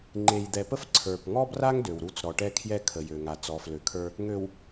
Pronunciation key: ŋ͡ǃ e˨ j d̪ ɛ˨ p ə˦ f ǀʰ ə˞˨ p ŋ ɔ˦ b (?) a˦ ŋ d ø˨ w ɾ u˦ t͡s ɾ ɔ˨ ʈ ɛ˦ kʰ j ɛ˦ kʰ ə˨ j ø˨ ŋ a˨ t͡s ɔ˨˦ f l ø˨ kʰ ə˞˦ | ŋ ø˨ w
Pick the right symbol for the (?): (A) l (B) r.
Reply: B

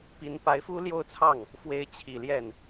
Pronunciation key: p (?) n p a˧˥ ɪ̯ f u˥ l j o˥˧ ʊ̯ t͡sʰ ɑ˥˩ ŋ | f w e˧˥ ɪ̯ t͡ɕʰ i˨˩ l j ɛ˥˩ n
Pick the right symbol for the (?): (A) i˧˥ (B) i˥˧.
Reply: A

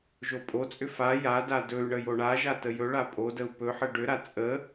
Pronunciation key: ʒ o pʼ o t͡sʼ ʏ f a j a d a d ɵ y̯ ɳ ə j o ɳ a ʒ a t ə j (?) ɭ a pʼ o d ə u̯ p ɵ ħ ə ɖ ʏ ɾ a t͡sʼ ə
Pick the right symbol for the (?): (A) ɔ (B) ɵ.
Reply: B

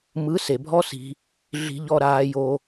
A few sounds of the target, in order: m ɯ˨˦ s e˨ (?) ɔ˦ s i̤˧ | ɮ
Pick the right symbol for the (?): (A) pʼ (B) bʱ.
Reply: B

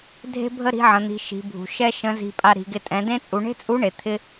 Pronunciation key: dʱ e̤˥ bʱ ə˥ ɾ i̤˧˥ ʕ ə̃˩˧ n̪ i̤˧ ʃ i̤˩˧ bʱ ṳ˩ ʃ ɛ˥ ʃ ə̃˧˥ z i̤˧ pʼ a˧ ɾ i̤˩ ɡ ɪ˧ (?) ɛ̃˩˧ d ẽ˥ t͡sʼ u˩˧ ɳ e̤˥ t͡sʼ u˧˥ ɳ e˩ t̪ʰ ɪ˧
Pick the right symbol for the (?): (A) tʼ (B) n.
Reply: A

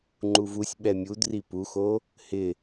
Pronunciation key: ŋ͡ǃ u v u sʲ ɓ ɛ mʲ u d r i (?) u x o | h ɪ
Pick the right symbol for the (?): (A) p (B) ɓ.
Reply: A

